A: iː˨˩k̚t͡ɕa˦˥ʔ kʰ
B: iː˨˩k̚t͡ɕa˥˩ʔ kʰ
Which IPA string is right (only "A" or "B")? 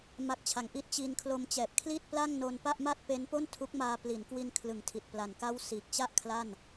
B